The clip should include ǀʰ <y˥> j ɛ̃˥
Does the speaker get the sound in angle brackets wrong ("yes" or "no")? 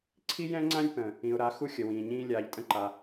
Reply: yes